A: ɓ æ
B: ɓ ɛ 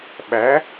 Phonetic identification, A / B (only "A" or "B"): A